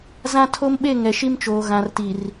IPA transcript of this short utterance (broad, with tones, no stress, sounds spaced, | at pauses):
z ã˦ tʰ o˦ m ɓ e˦˨ ŋ ɛ˨ ʃ i˦ m t͡ʃ oː˨ ɣ ã˨ r t i˨ r